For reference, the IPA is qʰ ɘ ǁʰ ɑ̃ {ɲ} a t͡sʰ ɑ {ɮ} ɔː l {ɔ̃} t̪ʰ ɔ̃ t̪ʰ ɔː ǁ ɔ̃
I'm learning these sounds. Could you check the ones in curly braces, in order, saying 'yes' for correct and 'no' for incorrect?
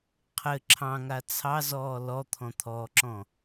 no, no, no

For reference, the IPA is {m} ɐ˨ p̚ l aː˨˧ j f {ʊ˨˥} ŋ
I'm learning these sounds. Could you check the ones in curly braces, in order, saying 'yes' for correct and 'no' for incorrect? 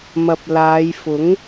yes, yes

